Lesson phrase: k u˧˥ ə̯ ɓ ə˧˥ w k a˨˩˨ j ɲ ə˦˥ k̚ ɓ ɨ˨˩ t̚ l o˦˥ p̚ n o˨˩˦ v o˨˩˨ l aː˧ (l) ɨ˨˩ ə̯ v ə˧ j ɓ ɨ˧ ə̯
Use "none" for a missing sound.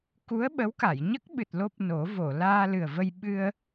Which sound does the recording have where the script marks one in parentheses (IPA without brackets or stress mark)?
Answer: l